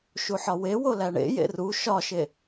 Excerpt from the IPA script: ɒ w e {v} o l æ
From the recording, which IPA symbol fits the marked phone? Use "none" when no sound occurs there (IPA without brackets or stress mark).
w